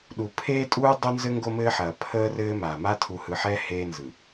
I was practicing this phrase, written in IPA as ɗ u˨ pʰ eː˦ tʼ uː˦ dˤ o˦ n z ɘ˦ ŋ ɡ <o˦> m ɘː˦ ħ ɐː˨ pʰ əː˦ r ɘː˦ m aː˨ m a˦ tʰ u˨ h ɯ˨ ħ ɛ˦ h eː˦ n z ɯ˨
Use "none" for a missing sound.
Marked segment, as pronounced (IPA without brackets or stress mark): o˦